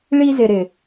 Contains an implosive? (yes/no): no